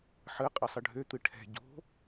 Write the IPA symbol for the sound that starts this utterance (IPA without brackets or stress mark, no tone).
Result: ħ